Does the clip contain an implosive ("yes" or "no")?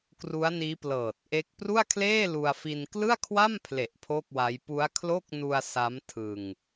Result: no